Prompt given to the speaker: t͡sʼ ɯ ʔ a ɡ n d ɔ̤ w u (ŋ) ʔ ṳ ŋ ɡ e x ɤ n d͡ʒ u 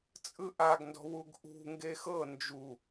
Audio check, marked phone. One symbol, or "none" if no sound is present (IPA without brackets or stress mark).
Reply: ɡ